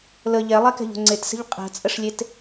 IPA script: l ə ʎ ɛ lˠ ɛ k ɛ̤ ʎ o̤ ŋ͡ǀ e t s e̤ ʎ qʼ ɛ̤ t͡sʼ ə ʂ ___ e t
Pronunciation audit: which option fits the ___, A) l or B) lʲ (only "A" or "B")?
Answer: B